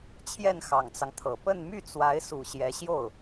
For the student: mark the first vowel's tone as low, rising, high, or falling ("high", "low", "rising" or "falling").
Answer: falling